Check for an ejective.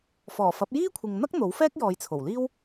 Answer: absent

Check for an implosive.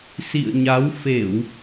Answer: absent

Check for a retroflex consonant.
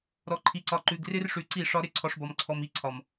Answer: present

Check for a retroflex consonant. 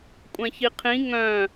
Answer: absent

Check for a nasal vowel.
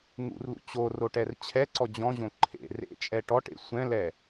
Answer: present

